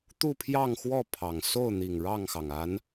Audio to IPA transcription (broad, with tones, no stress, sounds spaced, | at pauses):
t̪ u˥˨ pʰ j ɑ˥˨ ŋ x w ɔ˥˨ pʰ ɑ˨˩ ŋ s o˥˨ ʊ̯ n̪ i˨˩ ŋ ɻ ɑ˥˨ ŋ x ɑ˩ ŋ a˨˦ n